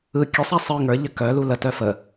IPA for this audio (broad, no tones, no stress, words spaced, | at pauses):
ɯ kʲəsˤa sˤɯŋ ə˞ʎə kœ lulətœ fə